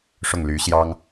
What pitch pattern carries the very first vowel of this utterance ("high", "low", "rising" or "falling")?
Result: falling